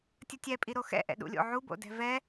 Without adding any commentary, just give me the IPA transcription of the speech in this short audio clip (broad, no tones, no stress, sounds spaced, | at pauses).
tʲ ə tʲ ɛ pʼ i ɾ o x ɛ̰ ʔ ɛ̰ ɗ ṵ lʲ o̰ ʕ u b o̰ d ɛ̤ v ɛ